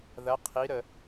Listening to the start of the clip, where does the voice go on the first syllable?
rising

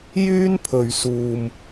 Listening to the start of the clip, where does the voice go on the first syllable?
high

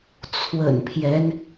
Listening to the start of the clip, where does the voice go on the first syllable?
low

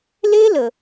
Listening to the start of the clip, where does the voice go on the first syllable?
high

